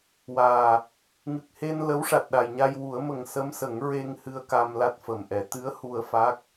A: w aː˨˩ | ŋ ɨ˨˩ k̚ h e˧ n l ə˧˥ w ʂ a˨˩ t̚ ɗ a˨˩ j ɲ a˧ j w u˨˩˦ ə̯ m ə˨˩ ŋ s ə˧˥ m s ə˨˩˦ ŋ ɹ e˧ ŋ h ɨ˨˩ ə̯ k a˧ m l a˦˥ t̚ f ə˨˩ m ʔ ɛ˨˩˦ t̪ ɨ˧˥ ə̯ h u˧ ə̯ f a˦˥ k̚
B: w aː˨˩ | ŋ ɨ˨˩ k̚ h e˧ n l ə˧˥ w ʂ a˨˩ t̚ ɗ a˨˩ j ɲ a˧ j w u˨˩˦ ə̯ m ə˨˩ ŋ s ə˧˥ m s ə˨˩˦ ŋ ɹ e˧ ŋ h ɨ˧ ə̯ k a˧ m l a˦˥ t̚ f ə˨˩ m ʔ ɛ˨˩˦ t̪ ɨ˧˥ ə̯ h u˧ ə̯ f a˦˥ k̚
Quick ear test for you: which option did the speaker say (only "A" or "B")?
B